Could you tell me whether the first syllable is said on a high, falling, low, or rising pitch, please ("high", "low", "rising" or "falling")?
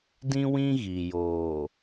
high